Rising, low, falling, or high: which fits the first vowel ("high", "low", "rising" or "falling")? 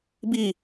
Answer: falling